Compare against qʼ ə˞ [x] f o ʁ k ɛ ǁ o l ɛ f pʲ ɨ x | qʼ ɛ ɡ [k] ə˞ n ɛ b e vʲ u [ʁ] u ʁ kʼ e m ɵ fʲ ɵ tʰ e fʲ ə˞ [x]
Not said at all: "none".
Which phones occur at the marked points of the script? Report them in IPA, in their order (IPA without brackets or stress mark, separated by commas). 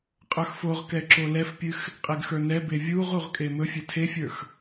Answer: x, x, ʁ, x